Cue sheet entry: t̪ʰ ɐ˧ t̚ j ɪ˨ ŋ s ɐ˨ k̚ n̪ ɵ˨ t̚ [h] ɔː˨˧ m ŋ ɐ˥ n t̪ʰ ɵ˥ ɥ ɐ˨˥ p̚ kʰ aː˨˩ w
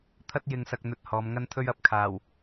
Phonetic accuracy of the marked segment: correct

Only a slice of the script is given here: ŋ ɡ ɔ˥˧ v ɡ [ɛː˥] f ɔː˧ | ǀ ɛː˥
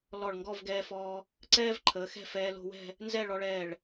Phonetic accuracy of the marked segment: incorrect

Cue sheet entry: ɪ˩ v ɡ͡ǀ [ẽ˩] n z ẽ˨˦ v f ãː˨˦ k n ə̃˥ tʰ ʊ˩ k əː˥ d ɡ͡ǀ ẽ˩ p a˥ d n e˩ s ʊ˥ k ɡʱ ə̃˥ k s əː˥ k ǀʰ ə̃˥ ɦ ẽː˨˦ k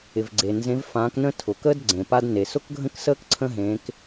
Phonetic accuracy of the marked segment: incorrect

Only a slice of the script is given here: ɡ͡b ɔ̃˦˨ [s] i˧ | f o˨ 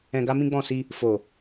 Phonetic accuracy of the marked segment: correct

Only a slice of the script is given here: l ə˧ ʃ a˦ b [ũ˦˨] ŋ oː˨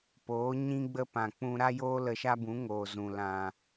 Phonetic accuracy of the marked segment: incorrect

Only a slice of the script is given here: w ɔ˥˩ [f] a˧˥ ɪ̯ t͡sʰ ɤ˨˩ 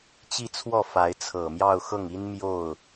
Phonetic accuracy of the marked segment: correct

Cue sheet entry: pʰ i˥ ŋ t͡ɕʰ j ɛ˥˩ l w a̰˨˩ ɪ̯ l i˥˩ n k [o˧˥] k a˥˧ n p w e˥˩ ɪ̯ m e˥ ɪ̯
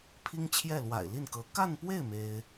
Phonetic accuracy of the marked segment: incorrect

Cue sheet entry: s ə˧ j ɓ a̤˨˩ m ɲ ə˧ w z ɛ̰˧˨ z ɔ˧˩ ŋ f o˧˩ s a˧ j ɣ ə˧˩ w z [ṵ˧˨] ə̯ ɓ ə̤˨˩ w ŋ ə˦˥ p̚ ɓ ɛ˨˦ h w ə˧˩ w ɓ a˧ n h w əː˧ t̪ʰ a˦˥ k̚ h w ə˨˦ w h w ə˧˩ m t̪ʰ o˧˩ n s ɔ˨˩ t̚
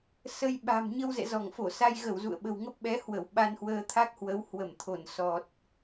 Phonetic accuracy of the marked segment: correct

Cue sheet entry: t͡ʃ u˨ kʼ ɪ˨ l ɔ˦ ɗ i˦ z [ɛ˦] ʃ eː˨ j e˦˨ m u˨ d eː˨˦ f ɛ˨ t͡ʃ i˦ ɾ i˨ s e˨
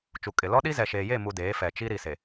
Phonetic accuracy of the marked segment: incorrect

